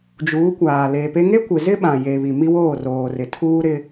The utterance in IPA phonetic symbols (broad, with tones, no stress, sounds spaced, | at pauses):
d͡ʒ uː˨˦ kʷ aː˨ l eː˨ p e˦ ŋ e˦ kʷ ɪ˨ z ɪ˦ ɓ ã˨ j e˨ β i˨ m i˦ w oː˦˨ r oː˨ r ɪ˨ tʰ uː˦ ɾ ɪ˦